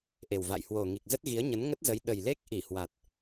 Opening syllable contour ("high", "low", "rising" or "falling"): low